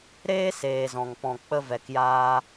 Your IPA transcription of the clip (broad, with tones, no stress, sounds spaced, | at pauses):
ɾ eː˦ s eː˨ z ɔ̃˨ ŋ p ɔ̃˧ k͡p ə˦ v ɛ˧ k j aː˦